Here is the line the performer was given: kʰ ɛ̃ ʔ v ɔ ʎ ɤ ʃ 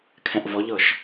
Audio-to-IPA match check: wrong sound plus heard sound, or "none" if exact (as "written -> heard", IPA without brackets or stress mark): none